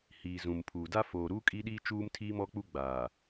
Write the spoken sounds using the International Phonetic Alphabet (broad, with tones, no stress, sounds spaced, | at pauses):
h iː˨ z ũ˨ m pʰ uː˨ d a˦ f oː˨ ɾ u˦ kʼ i˦ ɗ iː˦ t͡ʃ uː˦ m tʰ iː˦ m ɔ˦ k͡p u˦ ɡ͡b aː˨